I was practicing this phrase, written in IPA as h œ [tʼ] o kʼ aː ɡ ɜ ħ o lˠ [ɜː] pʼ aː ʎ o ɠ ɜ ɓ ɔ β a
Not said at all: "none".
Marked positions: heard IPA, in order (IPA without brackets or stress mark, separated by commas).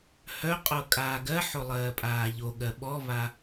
qʼ, ɜː